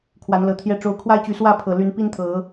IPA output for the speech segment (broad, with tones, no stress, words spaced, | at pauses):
kʰwa˨˦nlɤ˨˦t̪ʰjɛ˥˨ ʈ͡ʂo˨˦ʊ̯kʰwa˦ɪ̯t͡ɕy˨˦ swä˥˨ pʰɤ˨˩ly˨˦n pi˦nt̪ʰɤ˨˦